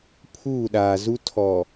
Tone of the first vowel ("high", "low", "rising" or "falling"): falling